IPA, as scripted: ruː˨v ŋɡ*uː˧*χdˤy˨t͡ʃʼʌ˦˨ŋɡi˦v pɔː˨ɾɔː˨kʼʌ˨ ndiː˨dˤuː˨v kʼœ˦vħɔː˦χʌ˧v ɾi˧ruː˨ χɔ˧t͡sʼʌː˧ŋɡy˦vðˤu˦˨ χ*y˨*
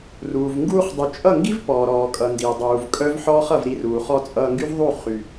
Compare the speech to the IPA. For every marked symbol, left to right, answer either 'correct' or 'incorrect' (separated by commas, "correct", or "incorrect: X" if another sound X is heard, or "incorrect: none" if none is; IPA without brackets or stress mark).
correct, correct